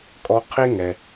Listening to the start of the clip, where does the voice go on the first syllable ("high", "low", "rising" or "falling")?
high